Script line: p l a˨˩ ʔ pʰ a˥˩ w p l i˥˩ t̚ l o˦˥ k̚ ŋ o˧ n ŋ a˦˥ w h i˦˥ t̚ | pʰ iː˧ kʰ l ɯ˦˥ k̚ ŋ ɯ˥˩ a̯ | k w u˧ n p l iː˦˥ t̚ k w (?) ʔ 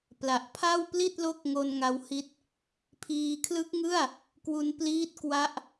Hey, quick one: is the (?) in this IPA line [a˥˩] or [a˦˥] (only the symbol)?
a˦˥